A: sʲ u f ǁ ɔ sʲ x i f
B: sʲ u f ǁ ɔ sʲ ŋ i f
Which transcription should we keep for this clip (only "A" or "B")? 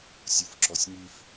B